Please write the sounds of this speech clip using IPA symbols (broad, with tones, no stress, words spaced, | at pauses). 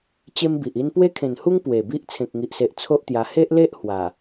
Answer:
t͡ɕe˦mbi˨ʔi˦n pwe˦kʰẽ˨˩nhu˦ŋ pwe˨˩bi˦ʔ t͡sʰẽ˨k̚ŋi˨ʔse˨ʔ t͡sʰo˦ʔt̪ja˧ he˦ʔle˦ʔ hwa˨˩